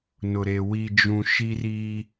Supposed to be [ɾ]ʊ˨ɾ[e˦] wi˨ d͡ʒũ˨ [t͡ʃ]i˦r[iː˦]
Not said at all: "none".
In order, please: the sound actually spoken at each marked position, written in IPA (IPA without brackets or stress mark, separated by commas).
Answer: n, e˨, ʃ, i˦